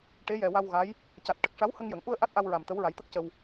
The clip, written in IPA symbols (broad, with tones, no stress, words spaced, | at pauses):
ʈe˧˥jɛ˨˩wa˧wɣa˧˥j | ca˨˩t̚ʈə˨˩k̚ ʂa˧˥whə˧ŋjə˨˩˨ŋ ʔu˧ə̯ ʔa˦˥t̚ʔa˧wɹa˨˩m t̪ə˧˥wɹa˨˩˦jt̪ə˦˥k̚cə˧w